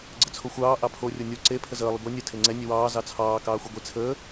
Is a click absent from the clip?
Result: no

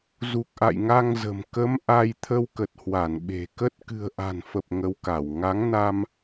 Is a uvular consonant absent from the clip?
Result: yes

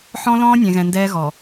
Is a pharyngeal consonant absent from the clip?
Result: no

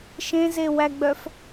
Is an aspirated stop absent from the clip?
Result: yes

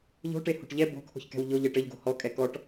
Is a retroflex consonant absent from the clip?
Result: no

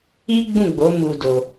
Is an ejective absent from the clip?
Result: yes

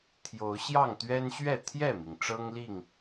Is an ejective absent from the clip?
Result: yes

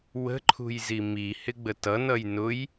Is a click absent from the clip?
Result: no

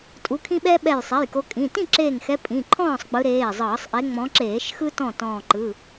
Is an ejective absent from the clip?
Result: no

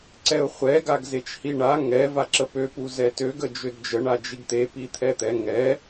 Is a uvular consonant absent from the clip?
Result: no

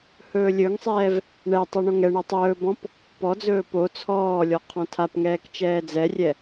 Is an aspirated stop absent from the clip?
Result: no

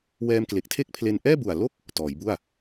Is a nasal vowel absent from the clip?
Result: yes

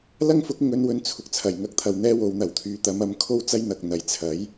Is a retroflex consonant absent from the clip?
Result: yes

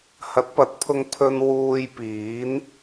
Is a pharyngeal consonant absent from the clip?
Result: yes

